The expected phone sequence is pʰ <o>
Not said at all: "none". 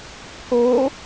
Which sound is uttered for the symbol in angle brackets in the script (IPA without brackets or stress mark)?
o